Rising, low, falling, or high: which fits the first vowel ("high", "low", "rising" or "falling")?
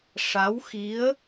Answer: rising